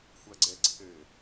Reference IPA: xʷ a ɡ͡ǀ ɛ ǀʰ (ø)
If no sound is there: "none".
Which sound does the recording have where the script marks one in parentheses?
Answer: ɘ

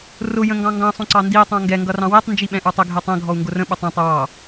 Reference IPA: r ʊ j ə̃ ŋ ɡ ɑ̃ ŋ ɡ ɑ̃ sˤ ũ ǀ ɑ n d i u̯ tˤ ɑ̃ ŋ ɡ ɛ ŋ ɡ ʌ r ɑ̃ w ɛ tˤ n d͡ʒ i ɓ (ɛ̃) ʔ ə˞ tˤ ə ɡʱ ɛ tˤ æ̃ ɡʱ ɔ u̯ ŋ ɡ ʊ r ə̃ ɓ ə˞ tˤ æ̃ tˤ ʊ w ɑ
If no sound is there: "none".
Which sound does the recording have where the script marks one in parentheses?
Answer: ɛ̃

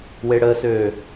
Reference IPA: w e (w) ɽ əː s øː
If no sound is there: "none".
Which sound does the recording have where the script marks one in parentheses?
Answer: none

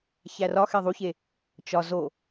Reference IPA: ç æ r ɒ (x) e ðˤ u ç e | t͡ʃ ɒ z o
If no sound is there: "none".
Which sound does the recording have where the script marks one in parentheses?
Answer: x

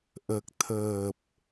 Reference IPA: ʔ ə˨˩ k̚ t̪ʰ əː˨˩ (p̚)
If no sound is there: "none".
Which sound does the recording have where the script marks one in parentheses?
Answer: p̚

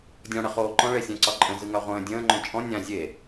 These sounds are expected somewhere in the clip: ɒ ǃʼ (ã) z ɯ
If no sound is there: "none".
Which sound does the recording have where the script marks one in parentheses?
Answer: ə̃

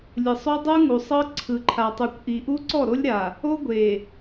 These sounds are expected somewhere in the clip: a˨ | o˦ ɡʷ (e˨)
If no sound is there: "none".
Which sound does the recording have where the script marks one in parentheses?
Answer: e˨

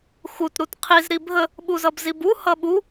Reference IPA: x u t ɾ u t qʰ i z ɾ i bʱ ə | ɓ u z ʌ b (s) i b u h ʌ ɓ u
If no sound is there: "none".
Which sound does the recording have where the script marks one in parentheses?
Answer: z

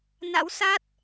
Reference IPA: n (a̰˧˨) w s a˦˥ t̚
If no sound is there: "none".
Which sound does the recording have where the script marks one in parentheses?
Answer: a̰˧˥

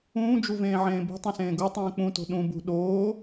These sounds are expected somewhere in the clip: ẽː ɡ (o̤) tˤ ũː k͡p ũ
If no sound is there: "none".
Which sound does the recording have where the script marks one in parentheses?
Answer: o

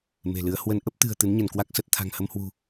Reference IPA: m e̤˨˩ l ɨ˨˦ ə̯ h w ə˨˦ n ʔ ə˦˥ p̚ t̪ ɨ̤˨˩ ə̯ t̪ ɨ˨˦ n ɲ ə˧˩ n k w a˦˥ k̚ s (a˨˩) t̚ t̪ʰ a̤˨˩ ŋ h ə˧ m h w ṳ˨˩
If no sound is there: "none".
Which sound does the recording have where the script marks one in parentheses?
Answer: ə˨˩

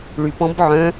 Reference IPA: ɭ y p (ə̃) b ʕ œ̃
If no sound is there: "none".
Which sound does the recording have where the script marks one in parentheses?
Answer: ɔ̃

